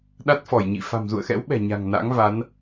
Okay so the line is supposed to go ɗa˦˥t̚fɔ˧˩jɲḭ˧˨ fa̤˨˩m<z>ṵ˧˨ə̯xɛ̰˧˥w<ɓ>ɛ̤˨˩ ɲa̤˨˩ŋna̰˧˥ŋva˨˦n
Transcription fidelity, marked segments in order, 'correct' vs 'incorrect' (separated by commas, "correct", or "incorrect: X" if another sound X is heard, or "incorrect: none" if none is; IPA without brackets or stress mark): correct, correct